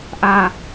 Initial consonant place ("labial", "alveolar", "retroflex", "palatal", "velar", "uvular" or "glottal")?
glottal